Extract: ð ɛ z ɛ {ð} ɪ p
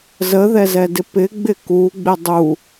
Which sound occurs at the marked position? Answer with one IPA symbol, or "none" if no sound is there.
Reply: d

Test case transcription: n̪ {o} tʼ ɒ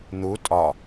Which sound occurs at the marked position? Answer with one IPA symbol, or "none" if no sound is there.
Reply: u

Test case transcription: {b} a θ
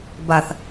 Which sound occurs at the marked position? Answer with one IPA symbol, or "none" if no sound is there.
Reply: b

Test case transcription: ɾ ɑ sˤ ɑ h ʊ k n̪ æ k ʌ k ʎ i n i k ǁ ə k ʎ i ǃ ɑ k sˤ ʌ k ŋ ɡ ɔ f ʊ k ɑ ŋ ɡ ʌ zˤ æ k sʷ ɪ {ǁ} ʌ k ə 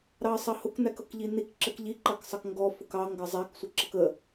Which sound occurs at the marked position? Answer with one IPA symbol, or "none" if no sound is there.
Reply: ǁ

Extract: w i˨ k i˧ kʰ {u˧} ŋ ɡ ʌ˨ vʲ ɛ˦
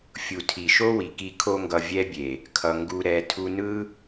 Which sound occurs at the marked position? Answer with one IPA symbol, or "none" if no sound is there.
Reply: o˧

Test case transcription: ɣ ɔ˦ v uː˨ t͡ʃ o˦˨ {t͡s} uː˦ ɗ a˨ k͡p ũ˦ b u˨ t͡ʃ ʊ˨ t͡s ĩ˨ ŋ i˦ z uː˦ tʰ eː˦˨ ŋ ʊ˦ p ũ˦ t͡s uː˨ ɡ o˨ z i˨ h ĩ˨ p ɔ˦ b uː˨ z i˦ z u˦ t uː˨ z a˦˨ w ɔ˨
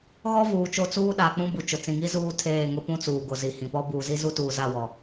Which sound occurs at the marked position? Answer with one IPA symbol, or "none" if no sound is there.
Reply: t͡s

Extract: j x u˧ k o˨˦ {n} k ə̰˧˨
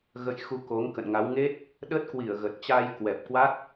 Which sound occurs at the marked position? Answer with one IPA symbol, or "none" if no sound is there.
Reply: ŋ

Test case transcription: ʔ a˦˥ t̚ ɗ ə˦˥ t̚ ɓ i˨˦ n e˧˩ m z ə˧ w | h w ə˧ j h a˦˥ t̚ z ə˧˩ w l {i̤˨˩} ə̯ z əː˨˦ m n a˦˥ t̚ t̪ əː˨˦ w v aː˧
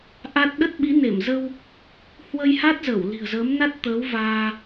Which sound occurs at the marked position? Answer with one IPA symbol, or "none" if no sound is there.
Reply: i̤˨˩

